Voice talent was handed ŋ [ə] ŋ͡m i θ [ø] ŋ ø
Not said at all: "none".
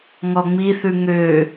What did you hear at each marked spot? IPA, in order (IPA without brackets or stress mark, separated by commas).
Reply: ɔ, ʉ